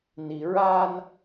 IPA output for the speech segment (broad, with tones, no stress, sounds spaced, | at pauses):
n i˨ ɹ a˦ n